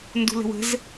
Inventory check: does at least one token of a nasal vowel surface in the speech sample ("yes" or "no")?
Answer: no